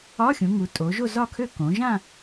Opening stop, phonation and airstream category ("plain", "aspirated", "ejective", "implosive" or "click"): ejective